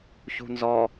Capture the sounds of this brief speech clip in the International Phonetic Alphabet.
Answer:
ç ṳ n z ɔ

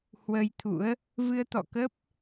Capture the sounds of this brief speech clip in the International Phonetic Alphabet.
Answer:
h w ə˧ j t̪ʰ ṵ˧˥ ə̯ | v ɨ˧ ə̯ t̪ ɔ̰˧˨ k ə˦˥ p̚

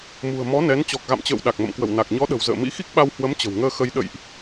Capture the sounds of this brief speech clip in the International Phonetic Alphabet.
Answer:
m ṳ˨˩ ə̯ m ɔ˨˦ n ɛ˨˦ n t͡ɕ ɔ˨˩ k̚ ɣ a̰˧˨ m t͡ɕ ə̰ː˧˨ w ɗ a˨˩ k̚ m ə̰˧˨ m k w ə̰˧˨ w n a˨˩ k̚ ɲ ɔ˨˦ ɗ ə̤˨˩ w z ə̰ː˧˨ m ḭ˧˥ x i˦˥ k̚ ɓ a˧ w h w ə˨˦ m t͡ɕ ə̤˨˩ w ŋ əː˧ x ə˧ j ɗ ə̰˧˨ j ʔ

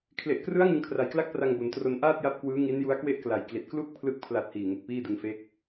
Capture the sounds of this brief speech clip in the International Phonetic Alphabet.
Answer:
kʰ l e˨˩ ʔ k r ɯ˦˥ a̯ ŋ ɯ˧ ŋ kʰ r a˨˩ j k l a˥˩ k̚ p r a˧ ŋ b o˩˦ n t r o˧ n ʔ aː˥˩ t̚ j a˦˥ p̚ k w ɯː˦˥ ŋ i˦˥ n j u˦˥ a̯ k w e˥˩ ʔ k l a˨˩ j k l i˨˩ t̚ k l u˥˩ k̚ pʰ l ɯ˦˥ k̚ pʰ l a˨˩ t̚ h iː˨˩ ŋ e˨˩ k̚ p iː˥˩ d ɯ˧ ŋ f eː˦˥ k̚

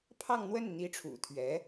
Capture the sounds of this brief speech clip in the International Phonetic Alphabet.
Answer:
pʰ ɑ˥˧ ŋ n̪ w ə˥˩ n n̪ i˧˥ ʈ͡ʂʰ ṵ˨˩ t̪ʰ ɥ ɛ˧˥

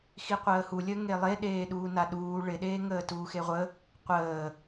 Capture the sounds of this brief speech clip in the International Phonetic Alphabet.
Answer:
x i qʷ əː h u lʲ əː ŋ e lˠ e ɗ eː ɗ uː n a ɗ uː ɭ ɪ ɗ eː ŋ əː t uː x e ʁʷ ə | qʷ əː

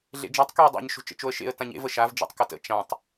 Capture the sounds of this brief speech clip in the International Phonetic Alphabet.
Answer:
ɮ ḛ d͡ʒ a tˤ k e ə̯ dˤ ḛ ɲ ʃ o̤ t͡ʃ ə̰ t͡ʃ o ə̯ ʃ ḛ ə̯ t ã ɲ ḛ v ə ʃ a v d͡ʒ ḛ tˤ k ə t ə̰ t͡ʃ ã tˤ

